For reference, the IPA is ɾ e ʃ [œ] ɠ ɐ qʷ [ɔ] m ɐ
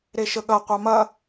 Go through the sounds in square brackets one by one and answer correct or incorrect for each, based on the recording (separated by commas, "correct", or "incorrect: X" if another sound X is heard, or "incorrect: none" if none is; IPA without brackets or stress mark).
incorrect: ə, incorrect: ɑ